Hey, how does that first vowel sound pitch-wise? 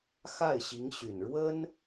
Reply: falling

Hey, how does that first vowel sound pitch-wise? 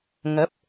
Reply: rising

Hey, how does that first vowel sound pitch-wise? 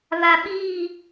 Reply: low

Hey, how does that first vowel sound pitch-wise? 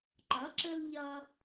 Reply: rising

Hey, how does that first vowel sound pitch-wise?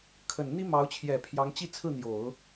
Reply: low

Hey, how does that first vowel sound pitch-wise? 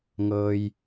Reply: low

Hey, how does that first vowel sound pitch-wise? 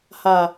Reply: low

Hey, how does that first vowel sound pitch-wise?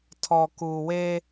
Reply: low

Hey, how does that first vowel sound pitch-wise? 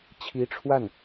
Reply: rising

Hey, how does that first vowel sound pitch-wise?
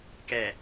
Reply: low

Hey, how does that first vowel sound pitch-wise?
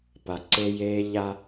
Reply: low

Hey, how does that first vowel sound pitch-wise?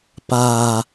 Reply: low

